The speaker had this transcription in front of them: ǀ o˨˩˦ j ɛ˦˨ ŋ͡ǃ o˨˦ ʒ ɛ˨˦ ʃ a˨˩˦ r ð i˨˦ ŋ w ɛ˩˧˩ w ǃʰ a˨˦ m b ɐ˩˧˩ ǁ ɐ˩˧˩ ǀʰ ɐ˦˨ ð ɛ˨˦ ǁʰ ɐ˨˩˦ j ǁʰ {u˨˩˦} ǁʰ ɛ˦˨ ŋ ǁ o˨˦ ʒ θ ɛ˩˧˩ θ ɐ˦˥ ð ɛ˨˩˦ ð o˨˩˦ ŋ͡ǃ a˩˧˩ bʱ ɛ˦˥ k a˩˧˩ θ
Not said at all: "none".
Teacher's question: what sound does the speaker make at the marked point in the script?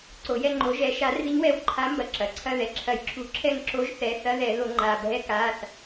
u˨˩˦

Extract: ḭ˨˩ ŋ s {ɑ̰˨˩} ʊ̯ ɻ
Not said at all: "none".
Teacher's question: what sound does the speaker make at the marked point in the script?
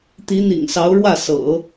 ɑ˧˥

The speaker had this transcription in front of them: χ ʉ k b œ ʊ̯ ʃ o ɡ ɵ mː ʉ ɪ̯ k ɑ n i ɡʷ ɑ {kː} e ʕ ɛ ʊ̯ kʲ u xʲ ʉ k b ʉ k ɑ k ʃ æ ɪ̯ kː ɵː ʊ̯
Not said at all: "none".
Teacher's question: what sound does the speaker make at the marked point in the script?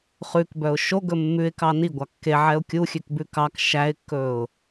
kː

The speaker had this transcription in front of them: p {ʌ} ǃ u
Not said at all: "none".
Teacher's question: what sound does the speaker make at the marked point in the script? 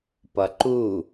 ʌ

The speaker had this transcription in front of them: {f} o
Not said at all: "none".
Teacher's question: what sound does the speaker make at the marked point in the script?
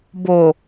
b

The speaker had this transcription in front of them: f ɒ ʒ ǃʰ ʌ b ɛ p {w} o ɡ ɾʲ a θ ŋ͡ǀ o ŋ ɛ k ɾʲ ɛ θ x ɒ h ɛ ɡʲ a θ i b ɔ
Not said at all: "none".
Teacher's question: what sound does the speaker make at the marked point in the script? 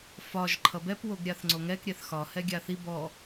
w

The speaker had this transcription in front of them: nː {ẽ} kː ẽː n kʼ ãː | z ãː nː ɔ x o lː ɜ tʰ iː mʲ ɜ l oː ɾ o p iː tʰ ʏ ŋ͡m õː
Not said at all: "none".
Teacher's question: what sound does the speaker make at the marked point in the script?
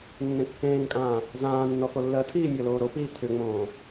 ẽ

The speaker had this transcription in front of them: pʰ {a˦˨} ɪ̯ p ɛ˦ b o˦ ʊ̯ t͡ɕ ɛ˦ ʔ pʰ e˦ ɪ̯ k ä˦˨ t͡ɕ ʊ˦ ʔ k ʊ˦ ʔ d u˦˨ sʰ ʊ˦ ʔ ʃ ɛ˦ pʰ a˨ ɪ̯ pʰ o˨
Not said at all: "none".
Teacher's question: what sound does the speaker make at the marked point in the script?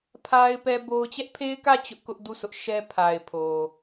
a˦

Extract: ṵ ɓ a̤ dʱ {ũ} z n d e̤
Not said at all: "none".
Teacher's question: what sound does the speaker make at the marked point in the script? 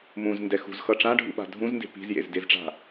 ũ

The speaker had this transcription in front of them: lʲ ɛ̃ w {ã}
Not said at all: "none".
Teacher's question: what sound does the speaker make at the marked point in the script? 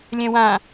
ã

